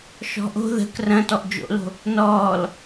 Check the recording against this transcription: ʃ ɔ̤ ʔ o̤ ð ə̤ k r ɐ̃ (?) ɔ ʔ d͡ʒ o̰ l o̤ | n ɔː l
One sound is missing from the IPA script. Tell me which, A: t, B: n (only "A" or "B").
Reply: A